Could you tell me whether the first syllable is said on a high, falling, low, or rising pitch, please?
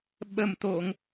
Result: low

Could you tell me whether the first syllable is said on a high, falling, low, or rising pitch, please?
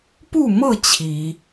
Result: falling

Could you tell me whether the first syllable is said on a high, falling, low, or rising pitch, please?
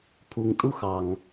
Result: low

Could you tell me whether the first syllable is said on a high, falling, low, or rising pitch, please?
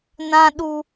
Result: high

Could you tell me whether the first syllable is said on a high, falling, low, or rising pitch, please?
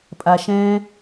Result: low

